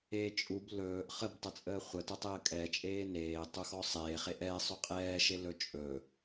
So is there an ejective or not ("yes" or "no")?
yes